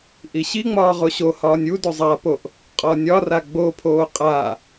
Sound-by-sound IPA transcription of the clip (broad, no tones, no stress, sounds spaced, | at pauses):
ʔ i ɕ i ŋ͡m ɒː ʁ o ɕ o h ɒː nʲ u d ø zˤ a p o ʔ | qʼ ɒ nʲ ɒ r a ɡ͡b o pʰ oː qʼ a